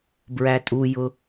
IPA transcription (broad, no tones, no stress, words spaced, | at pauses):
bɹætʼujʊ